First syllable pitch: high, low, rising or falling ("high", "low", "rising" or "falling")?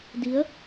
rising